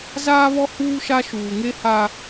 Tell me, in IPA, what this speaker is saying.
z aː˦ β ɔ˦ h uː˦ ʃ a˦ ʃ uː˨ ŋ e˦ h a˦

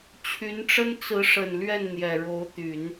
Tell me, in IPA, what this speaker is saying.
t͡ɕʰ y˧˥ n ʈ͡ʂ ə˥ n t͡s ɹ̩˧˥ ʂ ə˨˩ n l ɥ ɛ˥˩ n n̪ j ɛ˨˩ ɻ o˧˥ ʊ̯ t̪ y˨˩˦ n

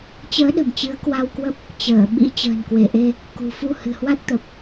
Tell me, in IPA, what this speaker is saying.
t͡ɕ əː˨˦ ɗ ə̤˨˩ m t͡ɕ ɨ˨˦ ə̯ k w a˧ w k w ə˦˥ p̚ | t͡ɕ əː˧˩ ɓ ḭ˧˥ t͡ɕ ə̤ː˨˩ n k w e˧˩ ʔ e˧ | k ṳ˨˩ f u˧ h ɨ̤˨˩ h w a˦˥ t̚ t̪ ə˨˩ p̚

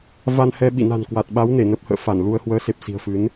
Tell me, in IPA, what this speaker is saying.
v a˧ n h ɛ˧ ɓ ḭ˧˨ n a̤˨˩ n k w a˨˩ t̚ ɓ a˨˦ w n e˧˩ n ə˦˥ p̚ h ə̰ː˧˨ f a˧˩ n l u˧ ə̯ h w əː˨˦ s e˨˩ p̚ s i̤˨˩ ə̯ f ɨ˨˦ n

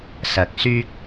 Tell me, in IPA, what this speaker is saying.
s ɐ˨˥ k̚ s yː˧ k̚

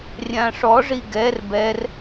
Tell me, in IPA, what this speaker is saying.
rʲ ã ʂ ɔ ʐ i ɡ ɛ r b ɛ r

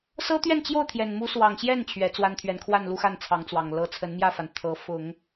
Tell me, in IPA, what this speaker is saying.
s ɤ˥ t̪ ɥ ɛ˥˧ n t͡ɕ j o˥˩ ʊ̯ t̪ʰ j ɛ˨˩ n m u˧˥ s w ɑ˨˩ ŋ ɕ j ɛ˥˩ n t͡ɕʰ ɥ ɛ˧˥ t͡s w a˥ n t̪ʰ ɥ ɛ˧˥ n kʰ w a˥˧ n l u˥˧ x a˥˩ n t͡sʰ ɑ˧˥ ŋ t͡s w ɑ˨˩ ŋ l ɤ˧˥ t͡sʰ ə˧˥ n m j ä˥˩ f a˩ n t̪ʰ ɤ˧˥ f ʊ˨˩˦ ŋ

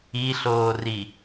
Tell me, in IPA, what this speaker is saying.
i ɬ oː r i

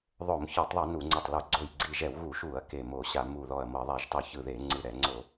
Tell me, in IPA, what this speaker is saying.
ðˤ o˧˩˧ m ç ɔ˧˩˧ tˤ ðˤ ɯ˧˩˧ n u˧˩˧ ŋ͡ǀ e˧˩ tˤ l u˧˩˧ ɡ͡ǀ o˧˩ j ɡ͡ǀ i˧˩ ʒ ɛ˧˩˧ w ɣ u˧˩˧ ʃ u˧˩˧ ɐ̯ k e˧˩ m o˧˩˧ ɕ a˧˩˧ m u˧˩ ð ɔ˧˩ ɐ̯ m ɤ˧˩˧ ðˤ ɛ˧˩˧ ʒ tˤ u˧˩˧ ç ɯ˧˩ ð e˧˩˧ ŋ͡ǀ ɯ˧˩ ɾ ɛ˧˩˧ ŋ͡ǀ o˧˩˧

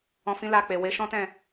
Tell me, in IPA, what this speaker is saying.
ɔ̃˧ f ĩ˦ l a˦˨ k͡p e˨ w e˨˦ ʃ ɔ̃˦ t ɛ̃˦˨

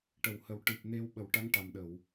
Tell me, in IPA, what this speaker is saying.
ʈ ə˨˩˨ w h ə˨˩ w ʈ ɨ˨˩ p̚ n e˧ w ɓ ə˨˩˦ w ʈ a˧˥ ŋ ʈ a˨˩ m ɗ ə˨˩˨ w

